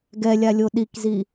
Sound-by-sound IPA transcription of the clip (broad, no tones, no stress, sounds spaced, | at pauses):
ɡ ɛ lʲ a lʲ o ɗ i k z i